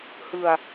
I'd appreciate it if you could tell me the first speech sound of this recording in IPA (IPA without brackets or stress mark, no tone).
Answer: h